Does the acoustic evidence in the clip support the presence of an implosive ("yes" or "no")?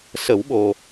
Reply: yes